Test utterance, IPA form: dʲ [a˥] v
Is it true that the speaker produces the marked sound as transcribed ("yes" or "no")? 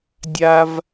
yes